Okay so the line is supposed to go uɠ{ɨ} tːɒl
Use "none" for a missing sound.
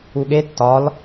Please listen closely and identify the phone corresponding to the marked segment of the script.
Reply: e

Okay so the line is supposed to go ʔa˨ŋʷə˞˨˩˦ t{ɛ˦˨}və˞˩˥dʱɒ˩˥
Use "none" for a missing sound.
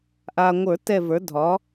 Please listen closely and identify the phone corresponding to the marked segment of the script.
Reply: ɛ˦˨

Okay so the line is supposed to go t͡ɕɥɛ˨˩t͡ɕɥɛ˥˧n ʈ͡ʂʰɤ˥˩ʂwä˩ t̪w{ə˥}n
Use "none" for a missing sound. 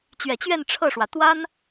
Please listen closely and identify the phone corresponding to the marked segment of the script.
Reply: a˥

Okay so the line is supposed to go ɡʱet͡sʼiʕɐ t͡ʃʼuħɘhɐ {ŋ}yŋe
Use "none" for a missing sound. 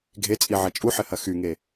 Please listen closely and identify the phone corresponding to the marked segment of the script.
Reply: x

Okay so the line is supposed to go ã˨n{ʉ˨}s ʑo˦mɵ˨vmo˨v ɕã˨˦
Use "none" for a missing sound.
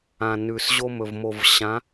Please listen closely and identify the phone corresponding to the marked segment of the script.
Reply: ʉ˨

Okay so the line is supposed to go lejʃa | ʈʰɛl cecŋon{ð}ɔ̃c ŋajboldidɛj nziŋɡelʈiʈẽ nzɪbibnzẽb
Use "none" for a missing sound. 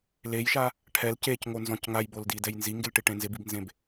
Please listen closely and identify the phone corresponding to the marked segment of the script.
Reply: z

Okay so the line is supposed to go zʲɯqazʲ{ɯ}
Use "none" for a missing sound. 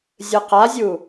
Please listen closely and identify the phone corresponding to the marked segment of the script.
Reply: u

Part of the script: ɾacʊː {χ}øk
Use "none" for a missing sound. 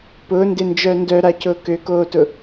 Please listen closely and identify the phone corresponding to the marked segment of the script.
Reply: k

